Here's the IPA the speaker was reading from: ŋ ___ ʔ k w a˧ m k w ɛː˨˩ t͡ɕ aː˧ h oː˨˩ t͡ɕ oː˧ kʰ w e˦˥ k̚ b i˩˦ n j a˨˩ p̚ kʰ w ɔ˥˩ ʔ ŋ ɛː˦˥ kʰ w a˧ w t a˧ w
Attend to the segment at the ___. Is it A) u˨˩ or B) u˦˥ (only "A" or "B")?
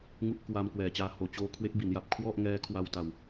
B